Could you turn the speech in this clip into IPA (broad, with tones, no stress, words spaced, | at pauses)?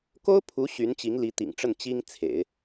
ko˥ʊ̯pʰu˧˥ ɕy˧˥nt͡ɕi˧˥ŋli˧˥ t̪ḭ˨˩ŋʈ͡ʂə˥˩n t͡ɕi˥ŋt͡sʰḛ˨˩˦ɪ̯